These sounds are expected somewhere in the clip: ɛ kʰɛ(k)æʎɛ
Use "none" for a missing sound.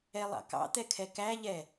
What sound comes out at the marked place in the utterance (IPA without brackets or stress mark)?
k